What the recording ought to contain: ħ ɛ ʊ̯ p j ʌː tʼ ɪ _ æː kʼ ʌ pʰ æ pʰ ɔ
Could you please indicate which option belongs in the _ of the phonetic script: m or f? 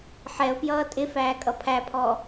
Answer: f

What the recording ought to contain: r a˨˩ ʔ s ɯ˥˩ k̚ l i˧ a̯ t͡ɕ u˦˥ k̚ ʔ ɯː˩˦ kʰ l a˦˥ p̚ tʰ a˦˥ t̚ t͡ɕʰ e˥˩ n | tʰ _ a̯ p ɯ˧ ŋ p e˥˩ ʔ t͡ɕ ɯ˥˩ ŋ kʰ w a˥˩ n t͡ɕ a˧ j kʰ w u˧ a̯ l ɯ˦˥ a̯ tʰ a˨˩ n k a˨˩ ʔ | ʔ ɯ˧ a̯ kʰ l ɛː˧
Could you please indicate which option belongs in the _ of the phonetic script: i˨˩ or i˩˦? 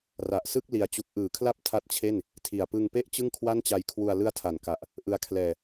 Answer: i˨˩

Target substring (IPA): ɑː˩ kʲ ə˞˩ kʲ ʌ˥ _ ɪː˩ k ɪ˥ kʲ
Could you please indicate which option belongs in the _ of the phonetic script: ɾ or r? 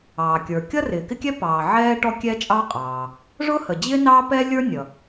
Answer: r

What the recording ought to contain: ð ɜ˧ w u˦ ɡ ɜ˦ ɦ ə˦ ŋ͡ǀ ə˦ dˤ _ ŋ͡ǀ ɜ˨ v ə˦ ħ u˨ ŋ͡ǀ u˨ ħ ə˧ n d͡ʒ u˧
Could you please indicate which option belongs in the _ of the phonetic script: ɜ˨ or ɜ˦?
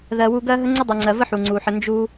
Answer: ɜ˨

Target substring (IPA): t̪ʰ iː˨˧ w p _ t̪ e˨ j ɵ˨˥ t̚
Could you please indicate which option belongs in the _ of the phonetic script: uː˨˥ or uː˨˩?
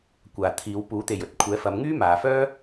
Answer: uː˨˥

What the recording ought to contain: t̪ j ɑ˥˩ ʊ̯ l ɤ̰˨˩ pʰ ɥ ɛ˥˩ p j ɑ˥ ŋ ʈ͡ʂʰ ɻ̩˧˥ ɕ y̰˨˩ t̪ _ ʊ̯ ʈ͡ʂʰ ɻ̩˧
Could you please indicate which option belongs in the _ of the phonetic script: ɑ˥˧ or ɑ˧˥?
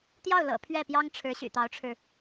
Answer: ɑ˧˥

